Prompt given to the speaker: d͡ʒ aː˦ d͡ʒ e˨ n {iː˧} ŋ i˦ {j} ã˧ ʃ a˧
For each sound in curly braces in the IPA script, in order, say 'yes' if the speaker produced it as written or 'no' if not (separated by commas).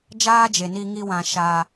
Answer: no, no